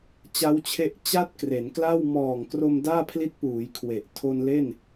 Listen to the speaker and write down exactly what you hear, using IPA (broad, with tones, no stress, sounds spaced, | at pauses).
t͡ɕ a˦˥ w t͡ɕʰ e˦˥ ʔ t͡ɕ a˥˩ t̚ k r e˩˦ n k l a˥˩ w m ɔː˨˩ ŋ k r o˧ m d aː˥˩ pʰ l i˦˥ t̚ p uː˩˦ j kʰ w e˨˩ ʔ tʰ o˧ n l e˥˩ n